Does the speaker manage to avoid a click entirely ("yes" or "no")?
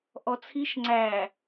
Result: no